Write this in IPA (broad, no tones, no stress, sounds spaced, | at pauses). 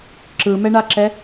ǁ ɯ m ɛ ɳ a ǁ ɛ